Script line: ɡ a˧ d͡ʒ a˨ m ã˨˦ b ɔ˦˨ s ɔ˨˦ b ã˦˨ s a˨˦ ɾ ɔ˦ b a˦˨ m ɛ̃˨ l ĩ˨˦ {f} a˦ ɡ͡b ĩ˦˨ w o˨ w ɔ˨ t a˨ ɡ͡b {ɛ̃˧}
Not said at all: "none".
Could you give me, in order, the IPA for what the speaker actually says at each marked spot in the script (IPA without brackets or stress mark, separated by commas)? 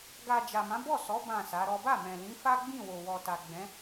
f, ɛ̃˨˦